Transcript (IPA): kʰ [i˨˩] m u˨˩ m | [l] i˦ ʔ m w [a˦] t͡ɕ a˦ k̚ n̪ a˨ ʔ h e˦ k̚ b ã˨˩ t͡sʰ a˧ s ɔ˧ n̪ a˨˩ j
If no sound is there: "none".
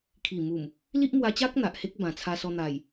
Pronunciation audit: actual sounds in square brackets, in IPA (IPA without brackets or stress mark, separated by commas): i˨˩, l, a˧